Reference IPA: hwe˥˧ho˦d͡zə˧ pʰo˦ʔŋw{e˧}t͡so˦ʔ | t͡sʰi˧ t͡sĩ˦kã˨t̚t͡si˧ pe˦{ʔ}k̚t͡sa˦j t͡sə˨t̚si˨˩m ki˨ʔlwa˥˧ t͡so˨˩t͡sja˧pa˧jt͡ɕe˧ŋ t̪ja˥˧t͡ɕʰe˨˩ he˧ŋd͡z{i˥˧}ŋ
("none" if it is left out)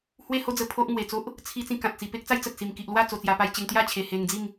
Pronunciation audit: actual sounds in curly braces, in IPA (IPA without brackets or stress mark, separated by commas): e˨˩, none, i˥˧